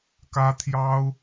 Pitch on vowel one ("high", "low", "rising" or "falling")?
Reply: high